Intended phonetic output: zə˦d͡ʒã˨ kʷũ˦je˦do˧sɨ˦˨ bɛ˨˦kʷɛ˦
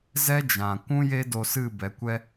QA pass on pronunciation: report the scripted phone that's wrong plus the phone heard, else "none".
ə˦ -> ɛ˦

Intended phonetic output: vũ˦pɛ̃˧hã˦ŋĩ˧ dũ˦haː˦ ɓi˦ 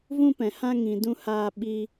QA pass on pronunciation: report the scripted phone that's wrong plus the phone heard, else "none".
none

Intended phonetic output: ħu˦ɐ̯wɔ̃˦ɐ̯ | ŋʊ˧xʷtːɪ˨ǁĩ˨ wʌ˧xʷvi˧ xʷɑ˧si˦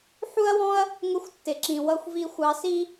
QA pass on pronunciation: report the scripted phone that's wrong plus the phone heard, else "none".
none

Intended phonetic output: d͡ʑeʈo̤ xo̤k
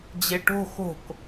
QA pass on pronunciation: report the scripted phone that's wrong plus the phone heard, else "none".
none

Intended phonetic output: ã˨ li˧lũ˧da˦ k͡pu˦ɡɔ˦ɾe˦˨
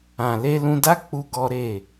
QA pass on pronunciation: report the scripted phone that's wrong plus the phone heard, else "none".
i˧ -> e˧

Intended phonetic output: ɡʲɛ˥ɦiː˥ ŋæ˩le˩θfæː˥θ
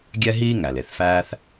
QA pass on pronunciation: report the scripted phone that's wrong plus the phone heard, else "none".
none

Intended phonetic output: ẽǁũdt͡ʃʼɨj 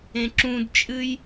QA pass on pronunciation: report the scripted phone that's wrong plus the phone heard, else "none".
none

